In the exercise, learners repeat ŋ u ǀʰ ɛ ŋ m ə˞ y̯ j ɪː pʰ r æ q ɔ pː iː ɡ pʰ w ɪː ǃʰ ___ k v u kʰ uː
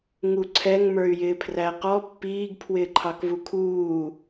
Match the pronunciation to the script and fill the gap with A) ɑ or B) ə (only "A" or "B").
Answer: A